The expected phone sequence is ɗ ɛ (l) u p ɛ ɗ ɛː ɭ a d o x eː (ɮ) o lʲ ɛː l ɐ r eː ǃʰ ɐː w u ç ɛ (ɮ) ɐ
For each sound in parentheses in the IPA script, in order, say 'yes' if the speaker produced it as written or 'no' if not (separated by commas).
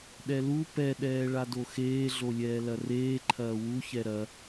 yes, yes, no